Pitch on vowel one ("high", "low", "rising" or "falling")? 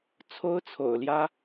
high